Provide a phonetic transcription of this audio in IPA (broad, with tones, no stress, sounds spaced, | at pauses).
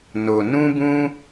n o˧ n ũ˦ b ũ˦